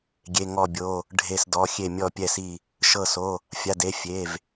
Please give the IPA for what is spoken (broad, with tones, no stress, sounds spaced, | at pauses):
ɡʲ e˩˧˩ ŋ ɔ˧˩ bʲ o˩˧˩ | ɖʱ e˧˩ s d ɔ˩˧˩ xʲ e˧˩ mʲ ɔ˧˩ pʲ ɛ˧˩ s i˧˩ | ʃ ɤ˧˩ s o˩˧˩ | fʲ a˩˧˩ d e˩˧˩ fʲ e˩˧˩ v